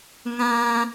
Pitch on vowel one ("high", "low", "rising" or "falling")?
low